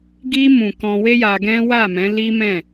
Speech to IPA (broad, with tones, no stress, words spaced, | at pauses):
ɡi˧mũ˨ kɔ̃˧we˦ja˧ɡɛ̃˦ wa˦˨mɛ̃˨˦ li˦mɛ̃˦˨